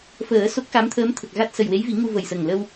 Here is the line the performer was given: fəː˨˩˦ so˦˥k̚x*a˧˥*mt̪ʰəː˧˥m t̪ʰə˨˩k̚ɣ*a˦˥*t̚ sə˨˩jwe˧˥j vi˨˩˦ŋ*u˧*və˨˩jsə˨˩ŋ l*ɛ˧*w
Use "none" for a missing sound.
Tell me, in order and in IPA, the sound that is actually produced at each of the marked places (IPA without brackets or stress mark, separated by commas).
a˧˥, a˦˥, u˧, ə˧